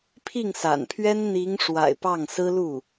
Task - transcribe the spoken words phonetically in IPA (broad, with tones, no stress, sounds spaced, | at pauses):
pʰ i˥˩ ŋ s a̰˨˩ n pʰ ɥ ɛ˥ n n̪ i˧˥ ŋ ʂ w a̰˨˩ ɪ̯ p ɑ˥˩ ŋ s ɹ̩˥ l u˥˩